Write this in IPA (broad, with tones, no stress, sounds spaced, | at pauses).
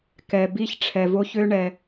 k ɛ˨ b i˦ ç ʈ͡ʂʰ ɛ˨ v o˦ ç ø˦ ɳ ɛ˨